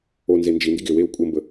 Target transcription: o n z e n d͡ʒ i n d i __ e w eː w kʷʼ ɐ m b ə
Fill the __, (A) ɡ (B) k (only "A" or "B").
A